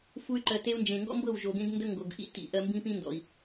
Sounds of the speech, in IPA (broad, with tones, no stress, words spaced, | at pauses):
fu˦y̯ǃɜ˧ te˧u̯nd͡ʒẽ˨ŋɡɔ̰˦mbɤ˦˨w ʒo˨ɡẽ˧ɡndə˧ ŋɡo˨ɡ ʔḭ˦tḭ˨ ʔɜ˧mbĩ˦pĩ˦ ndɔ̰˨i̯